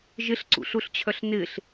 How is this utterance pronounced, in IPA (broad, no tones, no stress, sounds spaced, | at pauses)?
ʒ ɪ ɬ ǀ ṵ ɬ u ɬ t͡ɕʰ œ ɬ n ɪ ɬ